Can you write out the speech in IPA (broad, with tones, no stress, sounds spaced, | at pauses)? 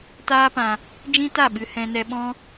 t aː˦ p ã˧ | d͡ʒ ĩ˦ t a˦˨ ɓ ɨ˧ h ɛ̃˧ n ɛ˧ ɓ ɔ̃˦